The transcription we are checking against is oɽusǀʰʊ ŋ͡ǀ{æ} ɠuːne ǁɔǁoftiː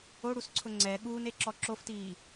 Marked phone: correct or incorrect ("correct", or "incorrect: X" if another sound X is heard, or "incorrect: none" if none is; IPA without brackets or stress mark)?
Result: incorrect: ɛ